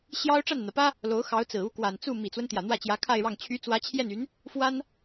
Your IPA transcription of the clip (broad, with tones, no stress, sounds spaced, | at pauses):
ɕ j ɑ˥ ʊ̯ ʈ͡ʂ a˥˩ n n̪ ä˩ p ä˥ | l o˧˥ ʊ̯ x ɑ˧˥ ʊ̯ t͡s ɹ̩˨˩ u˥˩ k w a˨˩ n t͡s u˥˩ m i˨˩ t͡s w ə˦ n t̪ j ä˨˩ n̪ w ä˥˩ t͡ɕ j ä˧˥ kʰ a˥˧ ɪ̯ ɻ ɑ˥˩ ŋ t͡ɕʰ y˧˥ t͡s w ä˧˥ t͡ɕʰ j ɛ˥˩ n y˧˥ n | f w a˥ n